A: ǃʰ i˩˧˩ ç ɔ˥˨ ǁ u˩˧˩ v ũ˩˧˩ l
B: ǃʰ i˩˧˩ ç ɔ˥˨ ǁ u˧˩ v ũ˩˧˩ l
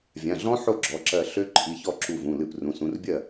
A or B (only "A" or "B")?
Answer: B